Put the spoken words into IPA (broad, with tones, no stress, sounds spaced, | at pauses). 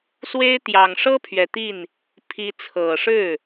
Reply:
s w e˥ ɪ̯ t̪ j ɑ˨˩ ŋ ʂ ɤ˥ pʰ ɥ ɛ˨˩ t̪ i˥˩ n | pʰ i˧˥ t͡sʰ ɤ˨˩ ʂ ɻ̩˥˩